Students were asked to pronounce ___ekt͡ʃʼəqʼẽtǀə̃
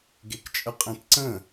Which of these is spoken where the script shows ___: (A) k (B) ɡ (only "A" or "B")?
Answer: B